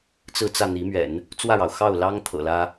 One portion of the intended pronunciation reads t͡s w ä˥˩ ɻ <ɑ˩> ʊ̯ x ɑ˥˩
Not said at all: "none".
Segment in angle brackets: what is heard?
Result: ɑ˩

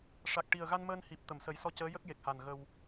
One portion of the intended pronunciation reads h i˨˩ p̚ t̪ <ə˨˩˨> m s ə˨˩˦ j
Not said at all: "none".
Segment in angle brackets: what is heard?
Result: ə˨˩˨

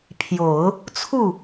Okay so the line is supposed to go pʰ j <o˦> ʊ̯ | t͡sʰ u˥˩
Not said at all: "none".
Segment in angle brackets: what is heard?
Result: o˨˩˦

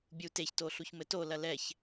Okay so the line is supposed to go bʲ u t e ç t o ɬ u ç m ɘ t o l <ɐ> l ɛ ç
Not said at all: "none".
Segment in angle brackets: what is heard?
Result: ɐ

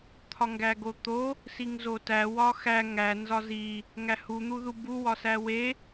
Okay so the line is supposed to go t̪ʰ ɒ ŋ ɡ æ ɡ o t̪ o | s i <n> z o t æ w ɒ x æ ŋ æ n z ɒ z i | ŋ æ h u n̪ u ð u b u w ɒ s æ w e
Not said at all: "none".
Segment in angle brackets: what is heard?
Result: ŋ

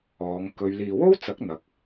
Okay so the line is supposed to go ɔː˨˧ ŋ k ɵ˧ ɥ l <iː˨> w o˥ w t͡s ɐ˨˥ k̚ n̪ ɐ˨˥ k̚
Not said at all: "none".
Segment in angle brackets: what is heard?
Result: iː˨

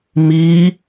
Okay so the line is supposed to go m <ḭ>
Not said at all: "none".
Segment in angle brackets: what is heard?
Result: i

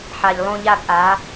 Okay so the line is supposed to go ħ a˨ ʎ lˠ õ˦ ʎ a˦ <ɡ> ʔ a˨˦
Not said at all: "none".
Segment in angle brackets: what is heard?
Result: ɡ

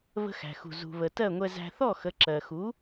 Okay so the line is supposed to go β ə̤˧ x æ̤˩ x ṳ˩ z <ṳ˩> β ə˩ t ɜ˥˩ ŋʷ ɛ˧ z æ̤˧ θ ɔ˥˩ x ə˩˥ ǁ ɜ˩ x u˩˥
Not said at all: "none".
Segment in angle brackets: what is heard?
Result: ṳ˩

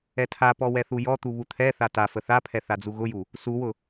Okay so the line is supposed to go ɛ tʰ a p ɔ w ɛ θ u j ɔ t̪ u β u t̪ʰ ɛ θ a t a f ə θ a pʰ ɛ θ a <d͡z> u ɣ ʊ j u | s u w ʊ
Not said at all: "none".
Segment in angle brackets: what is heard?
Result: d͡z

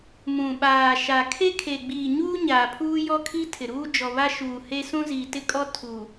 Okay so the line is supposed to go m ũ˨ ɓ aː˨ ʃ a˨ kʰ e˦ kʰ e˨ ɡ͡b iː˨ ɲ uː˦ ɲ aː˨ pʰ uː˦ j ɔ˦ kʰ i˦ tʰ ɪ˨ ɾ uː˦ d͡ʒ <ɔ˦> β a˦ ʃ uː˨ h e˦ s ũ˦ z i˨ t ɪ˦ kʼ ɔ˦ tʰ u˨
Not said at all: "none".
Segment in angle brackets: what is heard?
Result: ɔ˨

